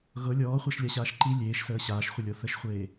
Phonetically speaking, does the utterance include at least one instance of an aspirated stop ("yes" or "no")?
no